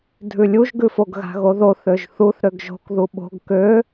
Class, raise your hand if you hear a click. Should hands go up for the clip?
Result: no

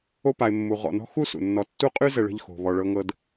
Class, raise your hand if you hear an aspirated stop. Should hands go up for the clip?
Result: no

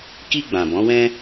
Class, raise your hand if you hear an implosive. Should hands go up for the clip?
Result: no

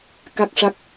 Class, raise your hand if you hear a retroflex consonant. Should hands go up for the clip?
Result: yes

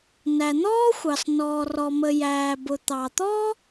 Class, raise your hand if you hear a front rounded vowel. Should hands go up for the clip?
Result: no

